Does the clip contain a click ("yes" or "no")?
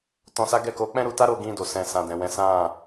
no